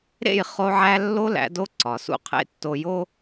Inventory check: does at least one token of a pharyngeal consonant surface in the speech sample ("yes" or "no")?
yes